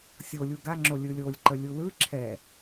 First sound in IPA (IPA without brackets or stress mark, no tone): sʲ